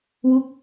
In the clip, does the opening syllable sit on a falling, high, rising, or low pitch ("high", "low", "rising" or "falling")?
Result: falling